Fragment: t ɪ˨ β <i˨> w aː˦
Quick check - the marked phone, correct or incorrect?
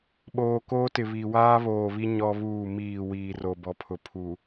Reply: correct